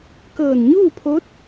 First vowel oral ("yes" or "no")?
yes